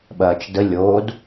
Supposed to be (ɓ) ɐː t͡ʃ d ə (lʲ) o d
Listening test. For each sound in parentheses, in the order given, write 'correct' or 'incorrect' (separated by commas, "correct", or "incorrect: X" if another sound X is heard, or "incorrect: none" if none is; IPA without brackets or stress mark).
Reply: correct, correct